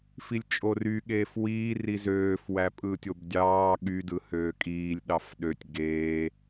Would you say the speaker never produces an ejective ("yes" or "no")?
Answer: no